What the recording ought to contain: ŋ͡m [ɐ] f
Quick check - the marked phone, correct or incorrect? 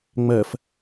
correct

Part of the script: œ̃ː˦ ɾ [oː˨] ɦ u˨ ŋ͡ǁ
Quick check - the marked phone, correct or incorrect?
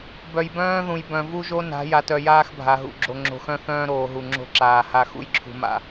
correct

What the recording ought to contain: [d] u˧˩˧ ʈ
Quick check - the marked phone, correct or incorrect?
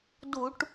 correct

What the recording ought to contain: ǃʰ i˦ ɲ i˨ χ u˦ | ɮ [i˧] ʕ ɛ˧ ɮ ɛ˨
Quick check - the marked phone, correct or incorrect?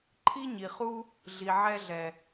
incorrect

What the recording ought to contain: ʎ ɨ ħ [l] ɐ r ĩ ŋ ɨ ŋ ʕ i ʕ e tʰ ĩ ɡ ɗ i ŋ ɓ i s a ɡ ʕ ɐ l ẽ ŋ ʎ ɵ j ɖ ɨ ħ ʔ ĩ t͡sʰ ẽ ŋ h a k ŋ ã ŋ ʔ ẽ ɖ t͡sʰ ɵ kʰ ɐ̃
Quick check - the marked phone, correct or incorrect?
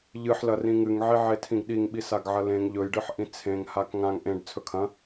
correct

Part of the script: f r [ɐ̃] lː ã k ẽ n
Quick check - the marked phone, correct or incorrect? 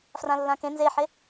incorrect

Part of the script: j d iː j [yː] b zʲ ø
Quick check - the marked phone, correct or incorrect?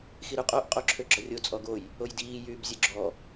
correct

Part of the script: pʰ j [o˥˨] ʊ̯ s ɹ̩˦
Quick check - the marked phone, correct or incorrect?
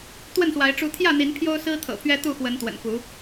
incorrect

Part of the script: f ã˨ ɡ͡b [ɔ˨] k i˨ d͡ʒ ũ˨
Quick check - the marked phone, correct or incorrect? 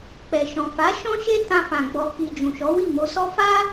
correct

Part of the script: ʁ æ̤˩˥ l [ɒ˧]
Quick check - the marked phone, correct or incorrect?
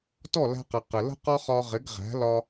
correct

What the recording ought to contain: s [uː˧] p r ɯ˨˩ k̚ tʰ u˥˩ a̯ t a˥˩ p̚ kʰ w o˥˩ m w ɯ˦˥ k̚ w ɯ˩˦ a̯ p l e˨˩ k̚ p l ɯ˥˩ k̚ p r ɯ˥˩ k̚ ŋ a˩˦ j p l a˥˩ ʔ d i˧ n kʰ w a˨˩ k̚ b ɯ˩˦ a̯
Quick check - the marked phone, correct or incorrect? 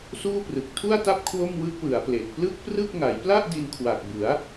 incorrect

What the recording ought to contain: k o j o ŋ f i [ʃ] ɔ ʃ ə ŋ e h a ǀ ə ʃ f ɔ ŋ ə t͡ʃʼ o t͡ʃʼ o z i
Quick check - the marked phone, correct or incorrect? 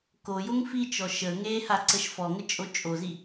incorrect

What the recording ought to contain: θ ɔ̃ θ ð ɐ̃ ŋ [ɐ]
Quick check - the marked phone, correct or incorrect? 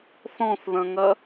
correct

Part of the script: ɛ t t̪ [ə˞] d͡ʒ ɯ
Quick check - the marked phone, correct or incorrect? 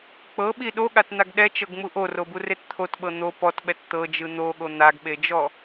incorrect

